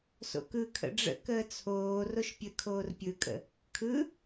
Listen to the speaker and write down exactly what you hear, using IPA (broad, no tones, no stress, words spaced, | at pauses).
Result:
so̰kɯ kʰə̰ɖ͡ʐə̰ kəːt͡sʰoː roʃpʲəkʰoːr pʲɯkʼə̰ | kʰɯ